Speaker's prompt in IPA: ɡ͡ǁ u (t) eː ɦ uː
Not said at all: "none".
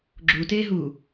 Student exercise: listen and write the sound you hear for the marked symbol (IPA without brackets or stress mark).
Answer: t